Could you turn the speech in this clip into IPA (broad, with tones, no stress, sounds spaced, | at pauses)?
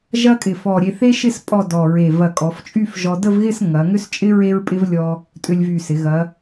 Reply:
ʒ ɐ˥ kʼ ɪ˧˩ f ɔ˧˩ ɾʲ e˧ θ e˥ ʃ ɪ˥˧ s pʼ ɔ˥˧ d ɔ˧˩ ɹ e˧˩ v ɐ˧˩ kʼ ɔ˩˧ f t͡ʃʼ y˥˧ f ʒ ɔ˧ d ə˥˧ v ɣ ɪ˥˧ s ŋ ɐ˩˧ ŋ ʏ˥ s t͡ʃʼ ɪ˥ ɹ e˥ ɹ pʼ ɪ˥ v lʲ ɔ˧ | tʼ ʏ˧ lʲ v y˧˩ s ɪ˩˧ ɣ ɐ˩˧